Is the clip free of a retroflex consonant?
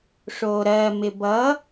no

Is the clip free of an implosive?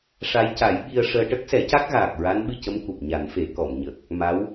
no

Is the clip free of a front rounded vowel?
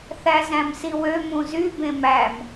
no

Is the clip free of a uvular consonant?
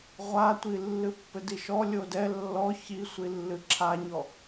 no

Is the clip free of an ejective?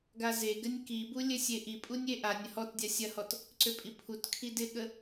no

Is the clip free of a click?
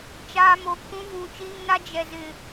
yes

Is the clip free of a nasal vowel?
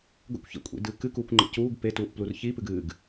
yes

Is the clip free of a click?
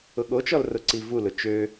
no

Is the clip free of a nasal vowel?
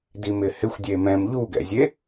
no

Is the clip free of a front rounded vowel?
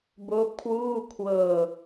yes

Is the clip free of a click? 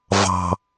yes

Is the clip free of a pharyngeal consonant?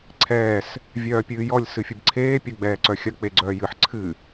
no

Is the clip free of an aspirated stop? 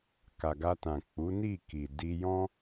yes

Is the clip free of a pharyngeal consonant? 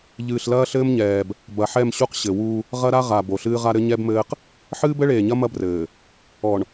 no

